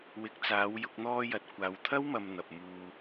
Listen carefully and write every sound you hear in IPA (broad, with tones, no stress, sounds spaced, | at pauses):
w ɪ˨˥ k̚ t͡s aː˨˧ w j ʊ˧ k̚ n̪ ɔː˧ j ɐ˨ t̚ kʷ aː˨ w t̪ʰ ɐ˥ w m ɐ˧ m n̪ ɐ˨ p̚ m uː˧